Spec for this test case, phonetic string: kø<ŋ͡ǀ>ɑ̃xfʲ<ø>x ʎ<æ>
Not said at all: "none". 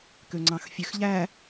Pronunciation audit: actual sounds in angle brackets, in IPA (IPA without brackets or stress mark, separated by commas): ŋ͡ǀ, ø, æ